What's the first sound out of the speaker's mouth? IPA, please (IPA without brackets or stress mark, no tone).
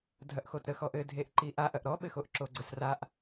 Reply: dʱ